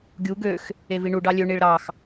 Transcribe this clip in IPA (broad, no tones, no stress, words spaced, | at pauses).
ɡʲu ɡøx | eviɳu ɖɑlʲø ɳiɭɾɑx